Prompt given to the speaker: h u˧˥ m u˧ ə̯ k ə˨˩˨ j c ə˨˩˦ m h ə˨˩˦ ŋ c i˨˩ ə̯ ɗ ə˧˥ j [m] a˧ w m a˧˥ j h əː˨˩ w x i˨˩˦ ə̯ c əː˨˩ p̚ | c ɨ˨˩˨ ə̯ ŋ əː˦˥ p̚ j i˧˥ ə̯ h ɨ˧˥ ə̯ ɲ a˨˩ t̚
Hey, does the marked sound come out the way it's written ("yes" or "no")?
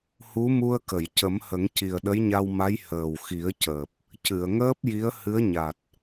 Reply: no